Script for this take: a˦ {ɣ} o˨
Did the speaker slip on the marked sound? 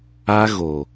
no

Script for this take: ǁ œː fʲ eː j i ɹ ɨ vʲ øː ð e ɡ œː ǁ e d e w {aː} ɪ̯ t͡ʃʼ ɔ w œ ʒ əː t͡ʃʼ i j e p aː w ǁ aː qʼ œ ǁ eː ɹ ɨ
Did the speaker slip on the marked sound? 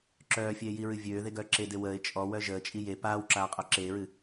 yes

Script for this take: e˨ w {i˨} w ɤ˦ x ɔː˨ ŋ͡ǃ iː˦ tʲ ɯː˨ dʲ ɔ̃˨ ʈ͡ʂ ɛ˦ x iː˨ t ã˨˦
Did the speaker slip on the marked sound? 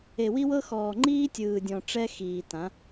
yes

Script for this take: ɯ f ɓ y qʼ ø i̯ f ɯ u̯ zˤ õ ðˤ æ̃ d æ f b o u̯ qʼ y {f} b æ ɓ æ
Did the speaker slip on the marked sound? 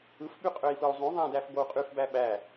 no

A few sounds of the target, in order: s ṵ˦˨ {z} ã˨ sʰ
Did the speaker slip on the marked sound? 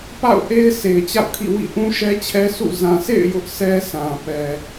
no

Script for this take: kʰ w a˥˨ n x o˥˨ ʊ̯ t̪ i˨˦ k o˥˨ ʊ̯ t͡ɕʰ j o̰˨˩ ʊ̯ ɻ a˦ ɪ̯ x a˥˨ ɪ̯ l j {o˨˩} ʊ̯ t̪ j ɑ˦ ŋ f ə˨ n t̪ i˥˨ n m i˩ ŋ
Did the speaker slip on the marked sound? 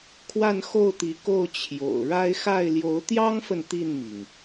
yes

